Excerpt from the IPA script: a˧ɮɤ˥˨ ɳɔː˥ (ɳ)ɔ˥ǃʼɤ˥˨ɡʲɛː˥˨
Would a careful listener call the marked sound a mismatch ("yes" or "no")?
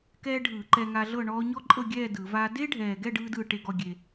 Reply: yes